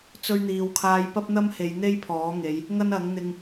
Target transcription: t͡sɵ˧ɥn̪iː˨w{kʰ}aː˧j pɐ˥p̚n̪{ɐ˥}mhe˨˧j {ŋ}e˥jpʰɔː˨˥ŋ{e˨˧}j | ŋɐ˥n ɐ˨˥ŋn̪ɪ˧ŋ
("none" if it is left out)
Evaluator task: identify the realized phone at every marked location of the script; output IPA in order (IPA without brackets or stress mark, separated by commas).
kʰ, ɐ˥, n̪, e˨˧